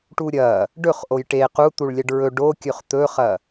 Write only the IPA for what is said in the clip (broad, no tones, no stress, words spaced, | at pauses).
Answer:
ʈuɾʲɐ | ɖɵχʔoj ʈe qut̪uɭlʲɐɖ ɹɵ ɖokʲɵχ t̪ɵχɐ